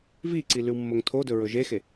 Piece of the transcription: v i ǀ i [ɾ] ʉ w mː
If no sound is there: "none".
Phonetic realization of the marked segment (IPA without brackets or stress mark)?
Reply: l